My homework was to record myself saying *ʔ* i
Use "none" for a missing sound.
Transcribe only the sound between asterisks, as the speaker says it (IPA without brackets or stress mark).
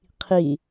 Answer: qʰ